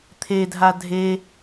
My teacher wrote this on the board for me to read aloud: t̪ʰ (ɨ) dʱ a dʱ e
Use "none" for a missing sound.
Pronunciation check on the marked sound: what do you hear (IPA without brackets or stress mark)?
e